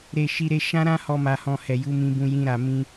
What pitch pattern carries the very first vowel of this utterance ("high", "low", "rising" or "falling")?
low